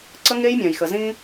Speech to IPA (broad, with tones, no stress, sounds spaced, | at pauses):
ǀ ə˦ ŋ e˦ j mʲ ã˨ j x ə˨ z ĩ˦